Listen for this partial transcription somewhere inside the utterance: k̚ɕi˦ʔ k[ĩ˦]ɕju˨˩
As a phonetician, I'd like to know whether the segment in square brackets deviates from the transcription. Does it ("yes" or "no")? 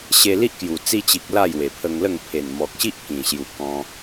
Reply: yes